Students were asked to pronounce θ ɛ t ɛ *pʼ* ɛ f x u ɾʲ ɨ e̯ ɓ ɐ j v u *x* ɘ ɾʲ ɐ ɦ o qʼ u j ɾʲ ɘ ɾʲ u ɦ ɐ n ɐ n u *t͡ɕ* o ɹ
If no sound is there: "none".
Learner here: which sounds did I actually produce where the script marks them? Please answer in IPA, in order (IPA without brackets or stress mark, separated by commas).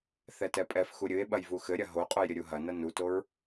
pʼ, x, t